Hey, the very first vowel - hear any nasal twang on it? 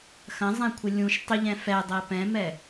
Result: yes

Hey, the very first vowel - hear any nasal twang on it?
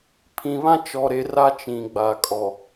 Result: yes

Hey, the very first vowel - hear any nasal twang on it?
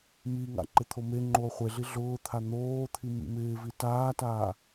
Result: no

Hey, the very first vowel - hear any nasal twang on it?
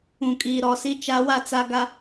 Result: yes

